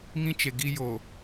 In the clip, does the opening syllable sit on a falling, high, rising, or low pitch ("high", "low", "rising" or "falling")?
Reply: high